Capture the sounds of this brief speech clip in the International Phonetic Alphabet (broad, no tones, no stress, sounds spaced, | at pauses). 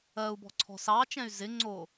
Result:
ɜ u̯ b ɔ̤ ǀʰ ɔ̤ s ɑ t͡ʃ ɛ̃ y̯ z ɪ ŋ͡ǀ o